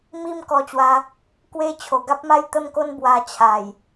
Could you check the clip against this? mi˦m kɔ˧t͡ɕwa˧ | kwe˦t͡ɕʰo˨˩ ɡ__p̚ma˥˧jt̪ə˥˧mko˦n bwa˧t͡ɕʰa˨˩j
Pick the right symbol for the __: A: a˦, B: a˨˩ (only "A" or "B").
A